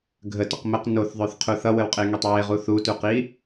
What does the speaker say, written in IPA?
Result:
ɡʱ ə t ə q m ə q n o θ ðˤ ø θ qʰ u θ ʌ w ə w qʼ e ŋ ø tˤ w e ʁ u θ u t u q i

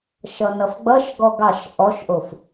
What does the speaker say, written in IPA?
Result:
ʃ ʌ n ʌ f ɡ͡b ʌ ʃ ɡ ɔ ɡ ɑ ʃ ʔ ɔ ʃ ʔ o f

